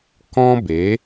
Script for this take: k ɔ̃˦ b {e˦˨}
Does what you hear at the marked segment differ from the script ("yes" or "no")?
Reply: yes